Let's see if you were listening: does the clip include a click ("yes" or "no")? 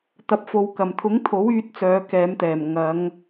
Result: no